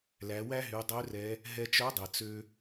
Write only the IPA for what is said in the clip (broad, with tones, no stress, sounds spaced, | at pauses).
l æ˩˧ w æ˥ ɦ y˩˧ dˤ ø˧˥ r ɛ˩˧ | ɦ ɛ˧ t͡ʃ œ˧˥ dˤ e˩ t͡s ø˧